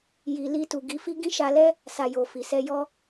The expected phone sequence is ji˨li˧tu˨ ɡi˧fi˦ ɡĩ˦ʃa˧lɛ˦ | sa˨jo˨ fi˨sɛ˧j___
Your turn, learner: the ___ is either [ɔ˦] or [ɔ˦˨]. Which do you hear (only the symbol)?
ɔ˦